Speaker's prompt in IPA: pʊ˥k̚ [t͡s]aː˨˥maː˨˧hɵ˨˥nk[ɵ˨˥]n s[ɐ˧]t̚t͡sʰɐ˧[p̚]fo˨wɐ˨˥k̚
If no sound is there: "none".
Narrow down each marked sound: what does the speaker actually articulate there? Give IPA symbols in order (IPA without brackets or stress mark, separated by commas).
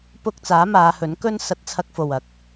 t͡s, ɵ˥, ɐ˧, k̚